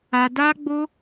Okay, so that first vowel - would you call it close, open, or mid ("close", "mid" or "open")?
open